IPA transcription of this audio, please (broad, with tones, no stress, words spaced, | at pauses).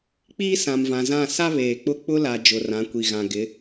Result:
k͡piː˦sã˨mvã˨zã˦˨ sa˦ βeː˨k͡pʊ˦ k͡pʊ˦la˨ d͡ʒʊ˨rã˨˦kʷi˨ɣã˨ ɡɪ˨˦